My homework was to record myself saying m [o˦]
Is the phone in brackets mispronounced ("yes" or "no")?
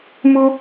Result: yes